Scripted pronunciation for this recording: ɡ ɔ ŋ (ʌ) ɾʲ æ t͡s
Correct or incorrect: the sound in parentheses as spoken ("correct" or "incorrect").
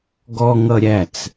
correct